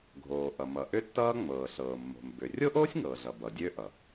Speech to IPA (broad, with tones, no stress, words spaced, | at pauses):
ɡʱoː˩ʔʌ˩ mʌ˩ʔʏ˥tːʌː˥ ŋ͡mɤː˩ɬɤː˩mːo̤˩m bʏ˩ rʲo˥ʔoː˥sʲŋɤː˩ɮʌ˩ bʌ˩dʲø˥ʔʌ˩